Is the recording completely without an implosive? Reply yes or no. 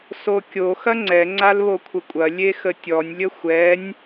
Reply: yes